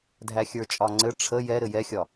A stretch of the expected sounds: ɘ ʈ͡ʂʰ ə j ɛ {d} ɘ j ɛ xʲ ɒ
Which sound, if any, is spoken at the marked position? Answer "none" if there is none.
ɾ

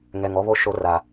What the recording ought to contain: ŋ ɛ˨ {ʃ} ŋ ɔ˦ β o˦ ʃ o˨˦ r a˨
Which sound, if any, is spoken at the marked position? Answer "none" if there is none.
none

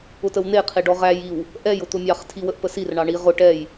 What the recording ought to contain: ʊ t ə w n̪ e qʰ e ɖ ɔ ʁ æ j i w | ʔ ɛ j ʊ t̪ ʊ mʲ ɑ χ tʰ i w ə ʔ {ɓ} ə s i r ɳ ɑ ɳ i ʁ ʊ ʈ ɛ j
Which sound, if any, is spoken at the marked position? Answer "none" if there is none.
p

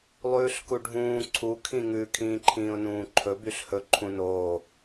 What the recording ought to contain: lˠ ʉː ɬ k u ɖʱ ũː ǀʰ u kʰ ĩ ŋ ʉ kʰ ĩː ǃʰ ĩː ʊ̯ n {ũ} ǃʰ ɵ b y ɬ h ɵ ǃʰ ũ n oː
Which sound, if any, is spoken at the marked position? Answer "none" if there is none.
ũː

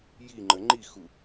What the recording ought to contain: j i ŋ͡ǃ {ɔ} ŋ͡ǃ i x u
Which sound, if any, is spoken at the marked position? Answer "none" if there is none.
ə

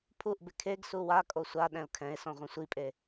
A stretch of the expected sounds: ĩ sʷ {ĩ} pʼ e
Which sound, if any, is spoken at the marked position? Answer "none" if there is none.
i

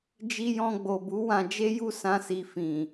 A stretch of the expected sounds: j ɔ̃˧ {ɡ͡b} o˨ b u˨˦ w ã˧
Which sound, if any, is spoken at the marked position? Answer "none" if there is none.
ɡ͡b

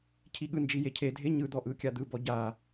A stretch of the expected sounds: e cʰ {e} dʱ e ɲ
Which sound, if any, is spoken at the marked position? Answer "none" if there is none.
e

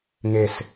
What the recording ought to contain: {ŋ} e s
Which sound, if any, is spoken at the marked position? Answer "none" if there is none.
ŋ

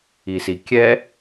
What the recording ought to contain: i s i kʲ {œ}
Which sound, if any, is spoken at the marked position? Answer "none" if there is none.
ɛ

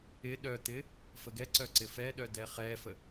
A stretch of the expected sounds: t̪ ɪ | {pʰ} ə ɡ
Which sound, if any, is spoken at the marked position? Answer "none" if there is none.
f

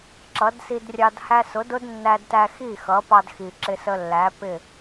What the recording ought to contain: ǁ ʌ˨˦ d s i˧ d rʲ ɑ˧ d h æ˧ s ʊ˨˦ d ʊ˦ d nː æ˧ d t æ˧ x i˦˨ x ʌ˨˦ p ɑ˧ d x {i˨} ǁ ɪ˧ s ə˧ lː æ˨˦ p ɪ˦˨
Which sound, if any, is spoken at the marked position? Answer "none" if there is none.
i˨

